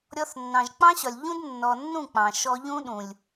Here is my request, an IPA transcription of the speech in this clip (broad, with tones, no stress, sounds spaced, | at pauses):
ɾʲ ɔ˧ θ nː ɑ̃˨ ʒ k͡p ɑ̃˦ ɕ ɒ˨ lʲ ʎ ũ˦ d nː ɔ˨ nː ũ˦˨ k͡p ɑ̃˨ ʃ ɔ˦ ʎ ũ˦ ɗ ũ˨ lʲ